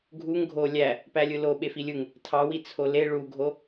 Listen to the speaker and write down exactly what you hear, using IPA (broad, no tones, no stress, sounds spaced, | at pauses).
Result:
ɡʱ u ŋ ɡʱ o lʲ æ | p æ lʲ ɯ l o ɓ e f i lʲ ɯ ŋ | tʰ ɑ w i t͡sʰ o l e ɭ u ɡʱ o